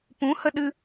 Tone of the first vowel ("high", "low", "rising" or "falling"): rising